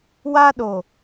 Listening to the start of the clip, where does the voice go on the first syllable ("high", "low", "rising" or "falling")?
high